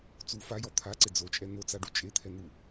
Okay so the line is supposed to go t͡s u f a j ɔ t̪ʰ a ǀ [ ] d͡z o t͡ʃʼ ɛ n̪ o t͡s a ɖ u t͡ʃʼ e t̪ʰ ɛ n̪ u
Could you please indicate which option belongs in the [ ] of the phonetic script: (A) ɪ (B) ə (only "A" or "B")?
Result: A